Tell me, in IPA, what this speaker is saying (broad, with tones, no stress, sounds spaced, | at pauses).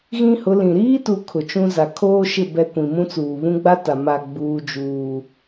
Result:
ɣ ĩ˦ h ʊ˨˦ l ĩ˨ ɾ iː˦ t u˨ kʰ ʊ˨ t͡ʃ ũ˦ z a˨ kʰ oː˦ ʃ ɪ˦˨ b ɛ˦ kʷ ĩ˨ m ũ˦ t͡s uː˨ β ũ˦ ɡ͡b a˦ t a˨ m a˨ ɡ͡b uː˦ d͡ʒ uː˦